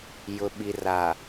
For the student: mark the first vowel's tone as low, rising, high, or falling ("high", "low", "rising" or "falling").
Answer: low